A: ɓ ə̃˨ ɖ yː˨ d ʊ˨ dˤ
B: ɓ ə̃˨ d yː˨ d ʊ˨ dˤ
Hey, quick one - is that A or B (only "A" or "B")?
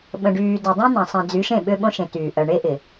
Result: A